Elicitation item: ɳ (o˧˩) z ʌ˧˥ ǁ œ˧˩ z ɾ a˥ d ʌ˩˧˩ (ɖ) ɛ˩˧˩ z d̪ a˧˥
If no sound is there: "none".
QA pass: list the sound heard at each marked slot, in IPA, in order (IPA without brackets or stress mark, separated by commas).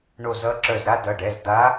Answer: o˧˩, ɖ